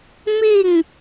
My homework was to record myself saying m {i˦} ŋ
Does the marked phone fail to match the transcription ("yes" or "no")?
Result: yes